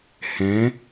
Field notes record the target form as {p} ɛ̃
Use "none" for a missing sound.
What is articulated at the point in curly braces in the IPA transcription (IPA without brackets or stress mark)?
h